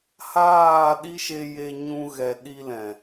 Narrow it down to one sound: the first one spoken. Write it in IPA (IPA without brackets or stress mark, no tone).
h